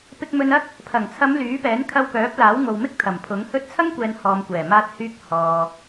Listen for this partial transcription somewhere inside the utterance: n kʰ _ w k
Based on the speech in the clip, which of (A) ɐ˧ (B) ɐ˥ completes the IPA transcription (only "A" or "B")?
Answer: A